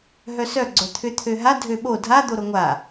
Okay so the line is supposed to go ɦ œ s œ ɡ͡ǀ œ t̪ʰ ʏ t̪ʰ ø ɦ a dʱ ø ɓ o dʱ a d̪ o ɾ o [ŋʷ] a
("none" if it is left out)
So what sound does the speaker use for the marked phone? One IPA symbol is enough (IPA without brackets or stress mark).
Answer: ŋʷ